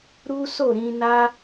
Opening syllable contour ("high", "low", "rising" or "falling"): high